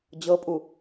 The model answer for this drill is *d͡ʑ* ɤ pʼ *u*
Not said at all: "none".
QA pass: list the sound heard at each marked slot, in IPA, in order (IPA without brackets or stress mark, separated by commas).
d͡ʑ, u